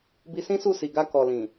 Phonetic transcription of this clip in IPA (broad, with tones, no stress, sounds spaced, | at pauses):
b i˧ s ĩ˦ s u˦˨ s i˨ ɡ a˧ k ɔ˨ l ĩ˨